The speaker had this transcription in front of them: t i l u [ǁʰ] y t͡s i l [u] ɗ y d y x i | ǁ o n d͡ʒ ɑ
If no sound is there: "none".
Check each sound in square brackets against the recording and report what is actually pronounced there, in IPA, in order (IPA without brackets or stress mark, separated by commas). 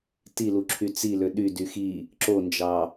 ǁʰ, ø